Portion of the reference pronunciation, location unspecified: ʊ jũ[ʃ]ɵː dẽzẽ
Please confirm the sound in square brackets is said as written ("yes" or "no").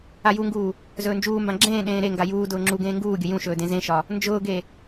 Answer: yes